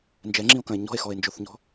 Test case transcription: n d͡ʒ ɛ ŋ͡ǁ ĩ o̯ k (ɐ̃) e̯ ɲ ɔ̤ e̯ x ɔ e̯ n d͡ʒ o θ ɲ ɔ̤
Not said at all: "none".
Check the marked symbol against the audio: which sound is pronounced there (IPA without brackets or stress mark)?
ɐ̃